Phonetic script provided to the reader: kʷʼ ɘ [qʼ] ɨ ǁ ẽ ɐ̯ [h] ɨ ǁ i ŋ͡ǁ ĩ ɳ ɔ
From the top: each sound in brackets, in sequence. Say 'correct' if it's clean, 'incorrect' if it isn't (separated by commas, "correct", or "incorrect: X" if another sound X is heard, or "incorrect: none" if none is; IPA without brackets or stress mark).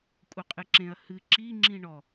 correct, correct